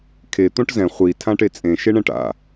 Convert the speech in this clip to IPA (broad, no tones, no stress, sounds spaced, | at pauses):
kʰ e t̪ õ ʈ z ɛ̃ χʷ i tʰ ã ʈ e t͡sʼ ẽ ʃ e ɳ ɛ̃ ʈ a̰